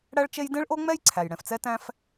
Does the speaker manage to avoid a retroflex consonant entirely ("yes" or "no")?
no